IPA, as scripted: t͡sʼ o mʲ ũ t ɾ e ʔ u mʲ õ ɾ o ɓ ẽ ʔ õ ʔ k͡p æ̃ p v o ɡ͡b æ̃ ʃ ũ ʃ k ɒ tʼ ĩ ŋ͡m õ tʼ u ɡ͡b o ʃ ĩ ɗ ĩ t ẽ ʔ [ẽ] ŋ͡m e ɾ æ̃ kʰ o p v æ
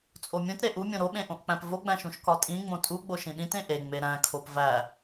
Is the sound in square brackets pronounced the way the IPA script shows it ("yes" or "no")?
no